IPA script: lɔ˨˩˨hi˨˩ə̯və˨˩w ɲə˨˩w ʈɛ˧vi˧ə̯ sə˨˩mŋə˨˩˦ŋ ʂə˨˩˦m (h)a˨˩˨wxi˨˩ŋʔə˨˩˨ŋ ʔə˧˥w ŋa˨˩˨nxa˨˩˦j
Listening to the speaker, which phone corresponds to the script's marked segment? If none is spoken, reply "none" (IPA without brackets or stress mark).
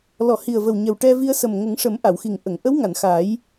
ʔ